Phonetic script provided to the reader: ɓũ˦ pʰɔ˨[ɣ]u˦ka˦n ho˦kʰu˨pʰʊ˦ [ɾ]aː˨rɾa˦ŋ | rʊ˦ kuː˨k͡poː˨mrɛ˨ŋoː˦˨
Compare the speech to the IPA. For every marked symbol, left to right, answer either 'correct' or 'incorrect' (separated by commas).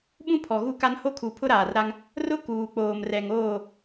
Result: correct, correct